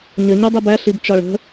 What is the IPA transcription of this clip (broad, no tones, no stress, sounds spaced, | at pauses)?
ɲ ə ɲ u dˤ i b æ ɬ i b t͡ʃ ɒ ɭ ə̤